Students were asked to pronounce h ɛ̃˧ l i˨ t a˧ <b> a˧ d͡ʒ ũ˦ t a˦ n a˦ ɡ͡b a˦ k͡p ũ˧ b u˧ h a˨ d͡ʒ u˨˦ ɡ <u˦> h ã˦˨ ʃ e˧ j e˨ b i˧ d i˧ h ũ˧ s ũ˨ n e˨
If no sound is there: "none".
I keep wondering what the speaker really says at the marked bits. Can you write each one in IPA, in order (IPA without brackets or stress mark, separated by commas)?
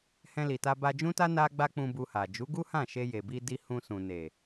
b, u˦